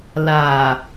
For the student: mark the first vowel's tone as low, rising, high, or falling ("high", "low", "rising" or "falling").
low